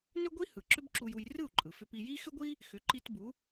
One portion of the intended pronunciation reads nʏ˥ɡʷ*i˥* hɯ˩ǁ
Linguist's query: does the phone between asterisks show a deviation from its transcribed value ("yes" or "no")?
no